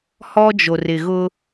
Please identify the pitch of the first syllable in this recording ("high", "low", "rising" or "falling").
high